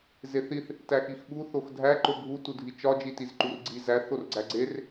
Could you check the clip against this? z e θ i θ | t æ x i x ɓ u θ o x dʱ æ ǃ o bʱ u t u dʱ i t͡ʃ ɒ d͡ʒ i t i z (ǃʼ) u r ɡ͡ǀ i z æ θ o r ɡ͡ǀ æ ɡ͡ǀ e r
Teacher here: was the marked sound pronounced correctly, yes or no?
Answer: no